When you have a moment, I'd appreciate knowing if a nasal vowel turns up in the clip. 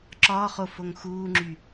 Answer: no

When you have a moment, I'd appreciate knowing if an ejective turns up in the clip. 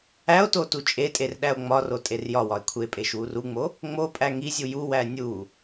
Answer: yes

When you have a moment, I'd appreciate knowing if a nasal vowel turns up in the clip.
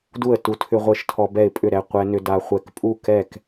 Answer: no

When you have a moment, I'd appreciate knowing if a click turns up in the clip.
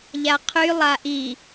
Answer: no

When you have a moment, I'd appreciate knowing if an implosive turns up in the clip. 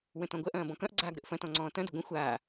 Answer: no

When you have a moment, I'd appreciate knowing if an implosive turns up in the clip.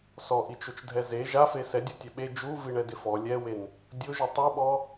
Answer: yes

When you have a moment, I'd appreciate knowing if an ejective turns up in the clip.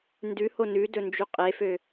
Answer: yes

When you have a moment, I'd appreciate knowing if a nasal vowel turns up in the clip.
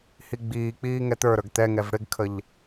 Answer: no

